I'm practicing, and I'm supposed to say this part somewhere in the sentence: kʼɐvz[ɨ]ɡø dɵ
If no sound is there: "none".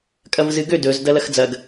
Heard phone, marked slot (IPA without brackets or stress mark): ɨ